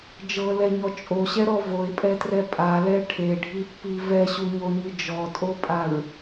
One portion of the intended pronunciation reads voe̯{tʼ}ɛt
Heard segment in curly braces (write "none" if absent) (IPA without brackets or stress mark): pʼ